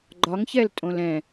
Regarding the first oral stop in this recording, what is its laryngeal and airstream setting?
click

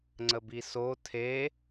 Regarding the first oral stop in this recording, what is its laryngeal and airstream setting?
click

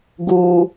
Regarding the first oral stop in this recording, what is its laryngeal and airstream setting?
plain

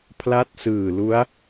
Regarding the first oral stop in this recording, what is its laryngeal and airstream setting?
aspirated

